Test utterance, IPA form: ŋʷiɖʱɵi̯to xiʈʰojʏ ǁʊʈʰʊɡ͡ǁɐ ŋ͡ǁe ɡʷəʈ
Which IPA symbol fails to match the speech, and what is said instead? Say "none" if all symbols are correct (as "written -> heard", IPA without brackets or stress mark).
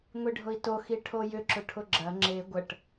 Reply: ɵ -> ʊ